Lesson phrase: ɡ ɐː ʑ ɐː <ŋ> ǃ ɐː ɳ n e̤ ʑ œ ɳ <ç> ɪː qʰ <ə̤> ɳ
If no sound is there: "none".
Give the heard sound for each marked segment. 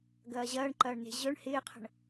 ɳ, h, ə̤

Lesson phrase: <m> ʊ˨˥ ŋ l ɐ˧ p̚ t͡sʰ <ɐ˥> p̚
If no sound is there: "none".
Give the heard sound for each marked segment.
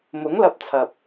m, ɐ˨

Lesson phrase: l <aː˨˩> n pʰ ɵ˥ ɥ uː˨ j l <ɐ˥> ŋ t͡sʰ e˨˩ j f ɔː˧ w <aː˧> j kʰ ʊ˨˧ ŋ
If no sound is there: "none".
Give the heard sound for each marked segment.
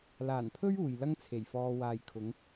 aː˨˩, ɐ˥, aː˨

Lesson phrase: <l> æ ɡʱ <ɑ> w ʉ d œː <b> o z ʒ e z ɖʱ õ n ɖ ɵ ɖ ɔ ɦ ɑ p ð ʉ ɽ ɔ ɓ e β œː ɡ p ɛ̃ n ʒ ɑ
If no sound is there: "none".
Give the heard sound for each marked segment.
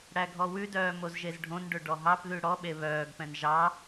ɽ, ɔ, m

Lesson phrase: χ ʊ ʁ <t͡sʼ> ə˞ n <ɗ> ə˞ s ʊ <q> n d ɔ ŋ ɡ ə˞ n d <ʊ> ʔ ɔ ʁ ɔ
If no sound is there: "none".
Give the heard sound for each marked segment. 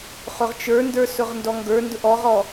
t͡ʃ, d, ʁ, ʊ

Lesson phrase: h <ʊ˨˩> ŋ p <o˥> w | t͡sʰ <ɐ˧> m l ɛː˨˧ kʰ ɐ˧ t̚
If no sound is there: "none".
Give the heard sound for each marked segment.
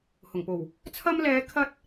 ʊ˨˩, o˨˩, ɐ˧

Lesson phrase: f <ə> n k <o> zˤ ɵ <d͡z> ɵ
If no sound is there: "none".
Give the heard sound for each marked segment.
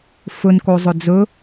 ɵ, o, d͡z

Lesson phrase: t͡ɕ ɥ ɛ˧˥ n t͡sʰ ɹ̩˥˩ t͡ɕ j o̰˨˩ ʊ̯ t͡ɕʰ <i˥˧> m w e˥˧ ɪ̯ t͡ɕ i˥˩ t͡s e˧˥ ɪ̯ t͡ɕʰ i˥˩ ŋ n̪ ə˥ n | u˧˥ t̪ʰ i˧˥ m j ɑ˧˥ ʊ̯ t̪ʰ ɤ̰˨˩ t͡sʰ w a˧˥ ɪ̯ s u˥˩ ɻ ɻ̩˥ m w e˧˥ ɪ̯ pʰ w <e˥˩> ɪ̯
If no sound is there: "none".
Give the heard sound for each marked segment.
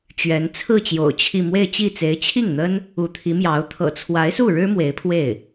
i˥˧, e˥˩

